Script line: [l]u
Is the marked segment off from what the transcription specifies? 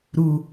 yes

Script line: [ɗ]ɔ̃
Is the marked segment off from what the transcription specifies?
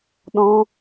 no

